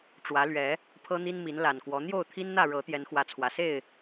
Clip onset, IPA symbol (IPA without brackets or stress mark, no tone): ʈ͡ʂ